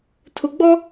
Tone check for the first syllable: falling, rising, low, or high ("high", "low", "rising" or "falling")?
low